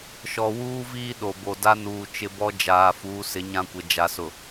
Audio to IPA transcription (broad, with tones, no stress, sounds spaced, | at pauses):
ʃ ɔ˨ w uː˦ v iː˦ ɗ o˨ b o˨ d a˦ n uː˨ t͡ʃ ɪ˨ b ɔ˦ d͡ʒ aː˨ f uː˨˦ s ɪ˨˦ ɲ ã˦ kʷ e˨ d͡ʒ a˨ s ʊ˨